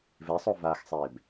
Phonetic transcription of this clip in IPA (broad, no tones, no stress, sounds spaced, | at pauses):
v e sˤ o v aː x sˤ eː b